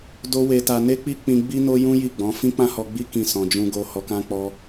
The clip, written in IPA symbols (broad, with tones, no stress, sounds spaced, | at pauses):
d o˦ w e˧ t a˧ n e˦ k͡p i˦ k͡p ĩ˧ ɡ͡b i˦ n o˦ j ũ˦ j i˦˨ ɡ͡b ɔ̃˨˦ f ĩ˦ k͡p ã˦ h ɔ˧ ɡ͡b i˦ k ĩ˦˨ s ɔ̃˧ d͡ʒ ũ˦ ɡ o˦ h ɔ˧ k ã˦ k͡p ɔ˦